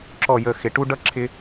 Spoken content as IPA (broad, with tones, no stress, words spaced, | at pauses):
ǁɔ˥˨jə˥˨xɪ˨˥ ʈu˥ ɖʌ˥ ǁʰɪ˥